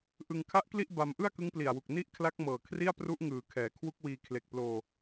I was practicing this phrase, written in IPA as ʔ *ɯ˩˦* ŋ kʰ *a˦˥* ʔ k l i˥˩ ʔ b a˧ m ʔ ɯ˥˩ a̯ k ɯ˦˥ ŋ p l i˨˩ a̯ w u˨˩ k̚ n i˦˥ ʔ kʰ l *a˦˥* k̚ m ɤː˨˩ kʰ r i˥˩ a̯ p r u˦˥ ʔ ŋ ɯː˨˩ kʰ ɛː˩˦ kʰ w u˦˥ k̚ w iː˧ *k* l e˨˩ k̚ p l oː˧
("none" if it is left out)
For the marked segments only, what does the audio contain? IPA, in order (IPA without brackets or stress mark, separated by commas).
ɯ˧, a˦˥, a˦˥, kʰ